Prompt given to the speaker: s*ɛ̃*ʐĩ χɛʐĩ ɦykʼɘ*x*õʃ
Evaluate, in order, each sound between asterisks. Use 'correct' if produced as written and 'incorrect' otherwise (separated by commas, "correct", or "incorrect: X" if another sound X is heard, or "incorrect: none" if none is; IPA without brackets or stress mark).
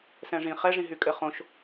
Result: correct, incorrect: χ